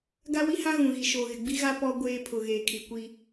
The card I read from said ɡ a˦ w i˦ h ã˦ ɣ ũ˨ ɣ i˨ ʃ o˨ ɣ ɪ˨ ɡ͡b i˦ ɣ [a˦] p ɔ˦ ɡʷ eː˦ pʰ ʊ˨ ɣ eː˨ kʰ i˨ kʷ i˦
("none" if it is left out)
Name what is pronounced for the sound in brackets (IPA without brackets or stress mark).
a˦